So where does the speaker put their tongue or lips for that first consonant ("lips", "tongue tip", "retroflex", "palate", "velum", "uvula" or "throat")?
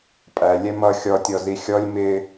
lips